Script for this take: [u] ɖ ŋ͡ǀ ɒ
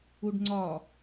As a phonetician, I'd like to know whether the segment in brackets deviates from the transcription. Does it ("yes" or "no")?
no